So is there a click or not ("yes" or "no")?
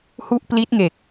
no